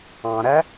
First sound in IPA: ɑ̃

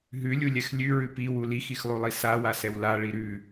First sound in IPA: ɦ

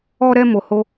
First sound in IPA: ɔ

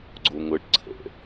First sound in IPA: ɡ͡ǀ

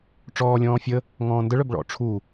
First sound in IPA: ʈ͡ʂ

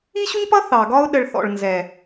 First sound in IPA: i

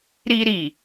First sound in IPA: ɾ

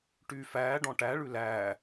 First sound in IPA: ʈ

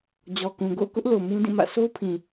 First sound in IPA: d͡ʑ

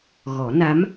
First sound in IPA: ɣ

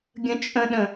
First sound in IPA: ɡʲ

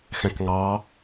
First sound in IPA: x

